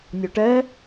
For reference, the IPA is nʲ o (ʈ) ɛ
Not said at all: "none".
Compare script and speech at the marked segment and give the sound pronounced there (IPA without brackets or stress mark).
ʈ